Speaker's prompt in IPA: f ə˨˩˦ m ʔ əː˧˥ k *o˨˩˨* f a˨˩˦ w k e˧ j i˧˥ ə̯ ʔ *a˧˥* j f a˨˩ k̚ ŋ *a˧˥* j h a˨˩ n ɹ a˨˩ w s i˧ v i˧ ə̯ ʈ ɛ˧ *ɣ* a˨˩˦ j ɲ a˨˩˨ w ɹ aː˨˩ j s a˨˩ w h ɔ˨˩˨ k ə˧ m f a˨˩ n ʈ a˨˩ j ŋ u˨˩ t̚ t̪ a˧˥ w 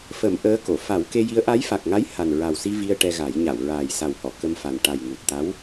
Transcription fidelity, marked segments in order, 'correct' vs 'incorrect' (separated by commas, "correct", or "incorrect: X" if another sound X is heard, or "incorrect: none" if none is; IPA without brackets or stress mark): correct, correct, correct, correct